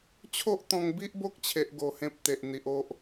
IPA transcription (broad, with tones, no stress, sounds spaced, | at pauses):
t͡ɕʰ o˦ ʔ t̪ ɔ̃˧ ŋ b i˦ ʔ b o˦ k̚ t͡ɕʰ e˦ ʔ ɡ o˧ h ẽ˦ p̚ t̪ e˨ ʔ n̪ i˨ ʔ o˦ ʔ